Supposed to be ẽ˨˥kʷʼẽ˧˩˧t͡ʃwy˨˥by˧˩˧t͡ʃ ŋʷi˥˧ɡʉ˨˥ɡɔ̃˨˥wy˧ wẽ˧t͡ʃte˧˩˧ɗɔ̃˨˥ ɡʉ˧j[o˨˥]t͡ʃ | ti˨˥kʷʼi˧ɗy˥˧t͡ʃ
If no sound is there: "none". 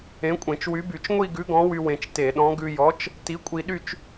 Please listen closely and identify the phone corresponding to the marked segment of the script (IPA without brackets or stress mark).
ɔ˨˥